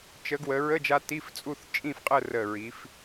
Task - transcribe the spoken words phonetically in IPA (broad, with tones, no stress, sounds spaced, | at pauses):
t͡ʃ ə˧˥ ɡ w ə˩˧ ɹ ə˧˥˧ d͡ʒ a˧ t i˧˥˧ f t͡sʼ u˥˨ θ t͡ʃʼ ĩ˥˨ f qʼ ə˥˨ r ə˧˩ ɹ i˩˧ f